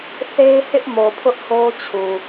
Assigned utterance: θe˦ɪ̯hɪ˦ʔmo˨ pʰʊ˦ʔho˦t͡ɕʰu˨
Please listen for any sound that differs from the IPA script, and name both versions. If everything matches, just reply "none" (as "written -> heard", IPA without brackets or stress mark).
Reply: none